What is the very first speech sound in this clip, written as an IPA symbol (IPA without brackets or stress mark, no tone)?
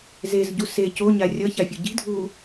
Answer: z